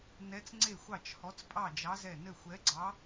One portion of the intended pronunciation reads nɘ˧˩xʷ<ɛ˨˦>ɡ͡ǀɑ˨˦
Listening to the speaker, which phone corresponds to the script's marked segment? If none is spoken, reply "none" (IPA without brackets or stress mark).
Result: ɛ˨˦